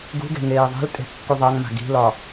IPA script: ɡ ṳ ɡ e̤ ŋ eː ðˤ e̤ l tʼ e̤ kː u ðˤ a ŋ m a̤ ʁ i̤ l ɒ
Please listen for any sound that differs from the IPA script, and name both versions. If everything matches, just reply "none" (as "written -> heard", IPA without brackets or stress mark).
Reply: ʁ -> ɡ